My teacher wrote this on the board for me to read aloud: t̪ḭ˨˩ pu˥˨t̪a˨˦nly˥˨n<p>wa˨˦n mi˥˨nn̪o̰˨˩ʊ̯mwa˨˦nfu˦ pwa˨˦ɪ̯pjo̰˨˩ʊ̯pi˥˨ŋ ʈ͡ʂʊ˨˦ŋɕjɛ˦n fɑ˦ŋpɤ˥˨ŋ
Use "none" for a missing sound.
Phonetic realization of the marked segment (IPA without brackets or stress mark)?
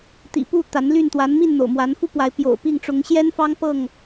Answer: t̪